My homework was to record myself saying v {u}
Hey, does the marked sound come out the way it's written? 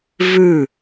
no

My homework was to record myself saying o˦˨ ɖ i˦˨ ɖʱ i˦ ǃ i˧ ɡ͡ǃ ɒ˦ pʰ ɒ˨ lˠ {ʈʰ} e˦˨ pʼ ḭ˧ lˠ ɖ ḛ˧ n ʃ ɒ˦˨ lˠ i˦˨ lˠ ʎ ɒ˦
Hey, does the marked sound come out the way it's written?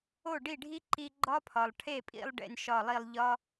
yes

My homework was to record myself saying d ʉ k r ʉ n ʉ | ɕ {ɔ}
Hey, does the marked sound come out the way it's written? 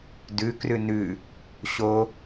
no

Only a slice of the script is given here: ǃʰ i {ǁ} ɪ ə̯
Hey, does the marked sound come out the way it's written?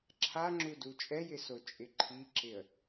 yes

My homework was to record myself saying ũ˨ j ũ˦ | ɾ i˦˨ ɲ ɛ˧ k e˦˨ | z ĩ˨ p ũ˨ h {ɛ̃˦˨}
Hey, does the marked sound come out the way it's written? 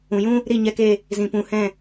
yes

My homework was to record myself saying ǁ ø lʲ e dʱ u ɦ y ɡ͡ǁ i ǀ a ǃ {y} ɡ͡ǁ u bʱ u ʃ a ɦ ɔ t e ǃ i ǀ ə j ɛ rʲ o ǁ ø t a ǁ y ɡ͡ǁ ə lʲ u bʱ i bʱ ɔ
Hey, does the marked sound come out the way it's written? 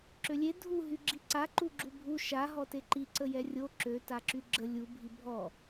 no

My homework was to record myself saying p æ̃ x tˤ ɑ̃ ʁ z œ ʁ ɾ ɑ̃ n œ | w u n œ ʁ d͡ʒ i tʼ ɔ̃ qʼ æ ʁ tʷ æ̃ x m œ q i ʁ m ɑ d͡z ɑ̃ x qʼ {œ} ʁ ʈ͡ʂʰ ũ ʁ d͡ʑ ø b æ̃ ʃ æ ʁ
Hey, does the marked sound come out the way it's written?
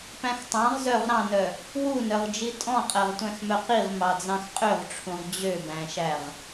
no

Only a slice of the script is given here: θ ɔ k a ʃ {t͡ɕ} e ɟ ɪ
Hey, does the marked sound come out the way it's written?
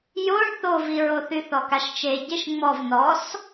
no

